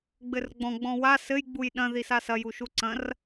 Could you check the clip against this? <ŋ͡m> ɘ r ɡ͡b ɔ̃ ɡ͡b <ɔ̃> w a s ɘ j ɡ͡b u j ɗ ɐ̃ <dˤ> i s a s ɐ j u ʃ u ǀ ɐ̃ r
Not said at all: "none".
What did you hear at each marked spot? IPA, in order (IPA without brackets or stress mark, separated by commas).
ɡ͡b, ɔ̃, ð